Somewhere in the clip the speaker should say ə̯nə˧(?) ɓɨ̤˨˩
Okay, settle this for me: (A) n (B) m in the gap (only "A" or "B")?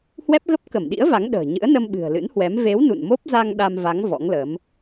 B